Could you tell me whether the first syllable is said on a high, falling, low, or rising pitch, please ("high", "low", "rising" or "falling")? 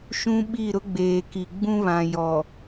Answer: high